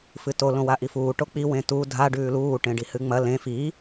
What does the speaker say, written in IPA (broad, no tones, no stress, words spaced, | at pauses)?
fɨto lõwaʔifuː ʈok͡pi wẽtu dʱa ɖʉːluː ʈẽɖihɨŋ͡mɐ lẽ fi